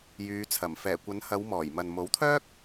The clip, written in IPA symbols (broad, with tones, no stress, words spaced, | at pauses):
jyː˨˧t͡sʰɐ˨˩m fɛː˨˩kʷɐ˨˧nhɐ˨˧w mɔː˨˩j mɐ˨n mo˨˥wt̪ʰœː˥k̚